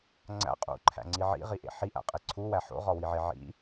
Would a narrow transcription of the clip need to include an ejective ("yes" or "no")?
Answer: yes